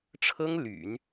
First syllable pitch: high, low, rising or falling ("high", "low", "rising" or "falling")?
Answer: high